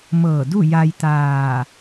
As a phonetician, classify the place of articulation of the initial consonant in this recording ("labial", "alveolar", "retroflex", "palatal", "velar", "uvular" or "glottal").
labial